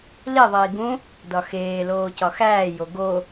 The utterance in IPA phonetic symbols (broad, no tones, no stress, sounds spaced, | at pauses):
l i ðˤ iː ɡ ũ | d ɒ x eː l oː c ɒ x æː j o ɡ o